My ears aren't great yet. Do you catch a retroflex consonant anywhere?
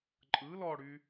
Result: yes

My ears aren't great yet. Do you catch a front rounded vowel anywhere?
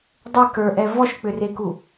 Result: yes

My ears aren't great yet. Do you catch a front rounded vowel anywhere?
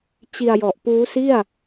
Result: no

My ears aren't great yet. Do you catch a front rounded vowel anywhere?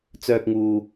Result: yes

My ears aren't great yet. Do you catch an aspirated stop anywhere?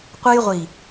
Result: no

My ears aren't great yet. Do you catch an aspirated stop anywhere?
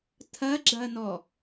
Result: yes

